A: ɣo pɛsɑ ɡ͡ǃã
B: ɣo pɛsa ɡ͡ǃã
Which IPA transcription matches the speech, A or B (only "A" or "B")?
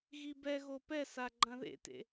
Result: B